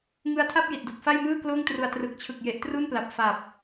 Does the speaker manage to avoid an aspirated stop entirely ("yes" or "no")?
no